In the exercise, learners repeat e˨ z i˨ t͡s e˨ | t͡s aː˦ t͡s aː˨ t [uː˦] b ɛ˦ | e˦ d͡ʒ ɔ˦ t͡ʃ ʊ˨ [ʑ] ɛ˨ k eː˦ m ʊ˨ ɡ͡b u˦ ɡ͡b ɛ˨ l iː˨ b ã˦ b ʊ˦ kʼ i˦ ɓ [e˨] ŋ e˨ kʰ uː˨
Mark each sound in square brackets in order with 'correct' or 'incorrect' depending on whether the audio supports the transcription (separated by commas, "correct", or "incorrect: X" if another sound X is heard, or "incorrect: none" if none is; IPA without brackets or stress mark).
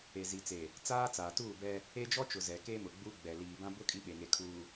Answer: incorrect: uː˦˨, incorrect: z, correct